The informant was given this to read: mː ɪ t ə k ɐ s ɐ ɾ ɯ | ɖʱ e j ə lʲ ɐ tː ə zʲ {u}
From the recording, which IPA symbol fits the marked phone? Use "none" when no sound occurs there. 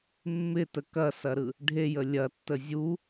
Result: u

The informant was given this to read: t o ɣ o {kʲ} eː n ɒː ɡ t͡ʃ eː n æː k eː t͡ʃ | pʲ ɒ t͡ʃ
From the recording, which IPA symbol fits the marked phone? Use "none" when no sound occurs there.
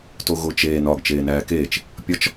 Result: t͡ʃ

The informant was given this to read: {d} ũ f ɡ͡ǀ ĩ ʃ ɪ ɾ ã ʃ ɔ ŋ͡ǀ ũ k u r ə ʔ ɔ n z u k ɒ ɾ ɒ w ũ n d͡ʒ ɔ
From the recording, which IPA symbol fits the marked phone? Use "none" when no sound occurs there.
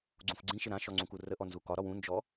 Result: ɡ͡ǀ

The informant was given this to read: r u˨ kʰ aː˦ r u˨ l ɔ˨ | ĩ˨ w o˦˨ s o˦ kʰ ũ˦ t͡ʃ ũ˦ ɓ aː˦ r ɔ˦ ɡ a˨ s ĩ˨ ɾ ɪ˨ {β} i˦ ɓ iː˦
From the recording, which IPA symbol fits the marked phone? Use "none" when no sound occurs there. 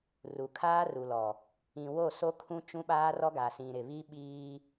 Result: β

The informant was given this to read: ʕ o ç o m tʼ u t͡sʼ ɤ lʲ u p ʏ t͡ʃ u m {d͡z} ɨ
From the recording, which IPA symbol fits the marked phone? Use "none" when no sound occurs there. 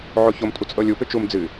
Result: d͡z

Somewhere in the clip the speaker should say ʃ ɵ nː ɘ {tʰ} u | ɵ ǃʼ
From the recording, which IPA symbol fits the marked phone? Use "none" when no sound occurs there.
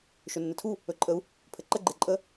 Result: tʰ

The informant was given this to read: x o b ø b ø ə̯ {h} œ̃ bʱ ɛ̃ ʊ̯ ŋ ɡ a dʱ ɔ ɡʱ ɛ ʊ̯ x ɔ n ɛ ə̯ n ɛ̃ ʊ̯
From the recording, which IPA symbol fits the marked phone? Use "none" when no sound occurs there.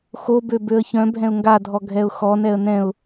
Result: ç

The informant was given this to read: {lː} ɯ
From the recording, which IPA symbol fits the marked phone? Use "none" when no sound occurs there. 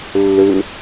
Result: lː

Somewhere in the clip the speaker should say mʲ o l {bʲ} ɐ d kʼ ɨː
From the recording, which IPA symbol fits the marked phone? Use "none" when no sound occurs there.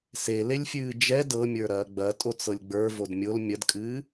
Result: mʲ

